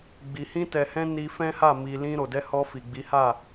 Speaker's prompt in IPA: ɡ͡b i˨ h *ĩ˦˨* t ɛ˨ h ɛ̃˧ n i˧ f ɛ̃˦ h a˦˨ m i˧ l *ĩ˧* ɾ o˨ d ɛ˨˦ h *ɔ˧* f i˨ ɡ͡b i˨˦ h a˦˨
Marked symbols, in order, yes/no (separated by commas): no, yes, yes